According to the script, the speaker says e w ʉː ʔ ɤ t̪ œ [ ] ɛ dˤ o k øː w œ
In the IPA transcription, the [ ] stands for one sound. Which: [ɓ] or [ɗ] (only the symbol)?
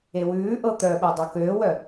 ɓ